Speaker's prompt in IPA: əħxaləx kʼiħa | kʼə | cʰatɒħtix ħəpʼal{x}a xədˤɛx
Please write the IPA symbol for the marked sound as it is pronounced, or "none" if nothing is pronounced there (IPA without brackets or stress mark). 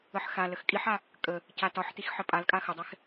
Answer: kʼ